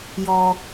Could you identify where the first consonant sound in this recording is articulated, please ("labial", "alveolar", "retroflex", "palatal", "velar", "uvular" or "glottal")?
palatal